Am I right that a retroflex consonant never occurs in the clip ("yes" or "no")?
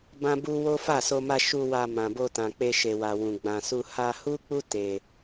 yes